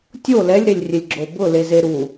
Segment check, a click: present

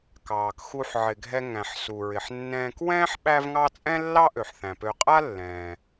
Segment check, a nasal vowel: present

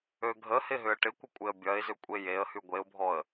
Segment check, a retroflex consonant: present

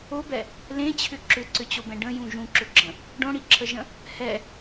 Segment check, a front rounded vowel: present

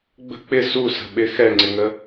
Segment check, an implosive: present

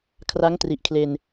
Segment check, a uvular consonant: absent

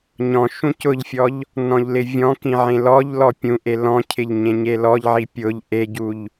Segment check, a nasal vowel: present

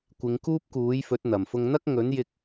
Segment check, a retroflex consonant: absent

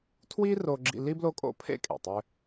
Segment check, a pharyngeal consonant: absent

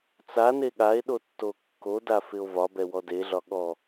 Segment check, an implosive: present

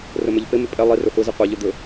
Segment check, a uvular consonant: present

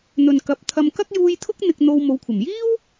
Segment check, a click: absent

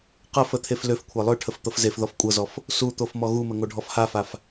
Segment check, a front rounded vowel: present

